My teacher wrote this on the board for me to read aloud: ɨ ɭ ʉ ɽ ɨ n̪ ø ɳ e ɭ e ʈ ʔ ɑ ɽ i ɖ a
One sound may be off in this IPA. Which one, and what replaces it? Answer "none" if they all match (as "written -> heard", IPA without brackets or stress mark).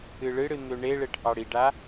ʉ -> ɨ